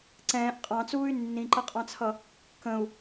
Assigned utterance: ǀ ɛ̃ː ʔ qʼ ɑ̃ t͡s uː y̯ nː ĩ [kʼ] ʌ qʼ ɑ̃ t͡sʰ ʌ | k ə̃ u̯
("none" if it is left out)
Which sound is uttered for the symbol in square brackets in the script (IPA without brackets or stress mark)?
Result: ǃ